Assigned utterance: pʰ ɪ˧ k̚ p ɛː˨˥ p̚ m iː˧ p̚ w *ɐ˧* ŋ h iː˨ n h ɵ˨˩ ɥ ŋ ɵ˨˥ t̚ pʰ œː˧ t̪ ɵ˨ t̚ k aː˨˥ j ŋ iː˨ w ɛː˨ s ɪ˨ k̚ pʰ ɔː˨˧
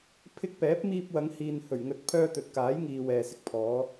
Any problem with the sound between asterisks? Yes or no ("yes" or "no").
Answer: yes